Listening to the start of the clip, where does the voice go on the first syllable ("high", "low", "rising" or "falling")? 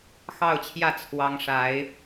falling